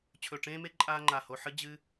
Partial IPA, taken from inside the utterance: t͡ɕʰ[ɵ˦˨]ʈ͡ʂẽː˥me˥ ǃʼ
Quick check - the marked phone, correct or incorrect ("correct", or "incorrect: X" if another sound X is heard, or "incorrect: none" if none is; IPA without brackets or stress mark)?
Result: correct